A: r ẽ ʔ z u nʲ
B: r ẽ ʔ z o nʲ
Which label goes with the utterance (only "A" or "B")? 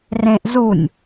A